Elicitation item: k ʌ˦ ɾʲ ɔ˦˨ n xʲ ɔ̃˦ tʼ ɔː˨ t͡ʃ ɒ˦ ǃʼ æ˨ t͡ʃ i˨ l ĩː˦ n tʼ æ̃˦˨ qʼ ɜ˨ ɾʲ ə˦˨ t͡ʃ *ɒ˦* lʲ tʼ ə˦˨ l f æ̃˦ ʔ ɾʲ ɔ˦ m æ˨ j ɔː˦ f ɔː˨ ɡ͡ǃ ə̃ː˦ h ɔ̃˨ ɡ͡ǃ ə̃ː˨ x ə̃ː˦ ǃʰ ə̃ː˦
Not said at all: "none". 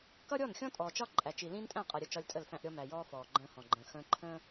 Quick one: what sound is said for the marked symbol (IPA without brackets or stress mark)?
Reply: ɒ˦